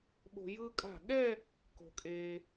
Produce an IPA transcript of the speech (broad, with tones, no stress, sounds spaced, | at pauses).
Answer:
ɓ o̤˧ j ɯ˧ kʼ a̤˧˩ ɠ ɛ˥˧ | k o̤˧ kʼ eː˧